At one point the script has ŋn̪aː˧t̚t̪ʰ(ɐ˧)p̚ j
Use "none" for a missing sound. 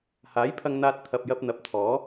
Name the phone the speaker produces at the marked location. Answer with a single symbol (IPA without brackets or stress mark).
ɐ˨